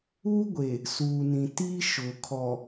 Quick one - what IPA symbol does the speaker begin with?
uː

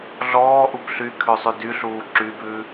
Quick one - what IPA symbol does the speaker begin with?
ɮ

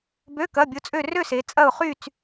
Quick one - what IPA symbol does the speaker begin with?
b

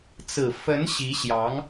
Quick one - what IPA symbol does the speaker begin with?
t͡s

